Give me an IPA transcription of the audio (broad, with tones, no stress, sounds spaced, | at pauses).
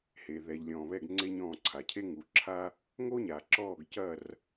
h e˨ ð ɛ˨ ʎ lʲ ɔ̃ː˨ β ɛ˦˨ ɡ ŋ͡ǀ e˥ ɲ ɔ̃ː˦˨ ǀʰ a˨ cʰ e˥ ŋ u˨ ǁʰ a˥ | ŋ o˥ ɲ a˨ ǁ ɔː˦˨ ɡ c ɐ˦˨ r